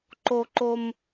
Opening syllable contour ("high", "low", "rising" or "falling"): high